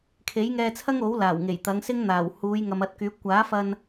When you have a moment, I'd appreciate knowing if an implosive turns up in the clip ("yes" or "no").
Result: no